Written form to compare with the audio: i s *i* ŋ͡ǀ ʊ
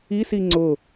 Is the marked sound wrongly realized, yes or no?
no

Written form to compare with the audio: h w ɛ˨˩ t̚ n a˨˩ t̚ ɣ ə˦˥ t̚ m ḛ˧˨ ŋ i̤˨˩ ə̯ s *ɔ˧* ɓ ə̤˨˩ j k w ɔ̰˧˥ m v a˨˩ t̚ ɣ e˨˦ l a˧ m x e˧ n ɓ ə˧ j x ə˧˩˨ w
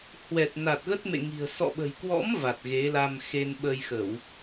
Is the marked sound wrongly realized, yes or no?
yes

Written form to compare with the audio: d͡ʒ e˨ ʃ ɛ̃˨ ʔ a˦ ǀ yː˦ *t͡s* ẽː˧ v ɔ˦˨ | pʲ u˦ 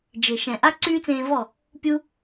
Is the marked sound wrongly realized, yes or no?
no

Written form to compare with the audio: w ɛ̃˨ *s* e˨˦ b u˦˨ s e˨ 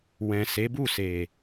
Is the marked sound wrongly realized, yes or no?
no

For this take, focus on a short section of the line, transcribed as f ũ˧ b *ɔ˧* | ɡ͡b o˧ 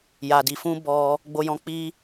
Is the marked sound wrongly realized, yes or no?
no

